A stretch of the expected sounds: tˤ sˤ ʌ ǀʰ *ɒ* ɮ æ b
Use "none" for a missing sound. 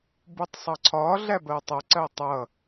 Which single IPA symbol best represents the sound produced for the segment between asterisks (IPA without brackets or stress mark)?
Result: ɒ